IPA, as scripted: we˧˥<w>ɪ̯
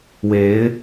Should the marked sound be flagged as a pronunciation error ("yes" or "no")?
yes